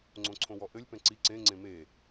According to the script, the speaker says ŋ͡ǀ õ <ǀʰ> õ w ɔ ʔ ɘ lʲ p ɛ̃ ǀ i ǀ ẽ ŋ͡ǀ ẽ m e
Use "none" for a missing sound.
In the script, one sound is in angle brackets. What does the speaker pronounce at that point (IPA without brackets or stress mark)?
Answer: ǀʰ